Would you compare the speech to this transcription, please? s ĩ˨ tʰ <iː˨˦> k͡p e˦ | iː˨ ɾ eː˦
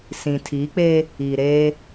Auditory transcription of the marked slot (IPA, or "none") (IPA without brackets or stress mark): iː˨˦